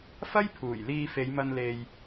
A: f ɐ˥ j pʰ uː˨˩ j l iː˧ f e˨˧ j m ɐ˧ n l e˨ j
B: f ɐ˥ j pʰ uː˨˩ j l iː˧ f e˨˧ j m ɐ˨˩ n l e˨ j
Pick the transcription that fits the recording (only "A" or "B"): A